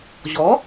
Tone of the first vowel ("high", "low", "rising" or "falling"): rising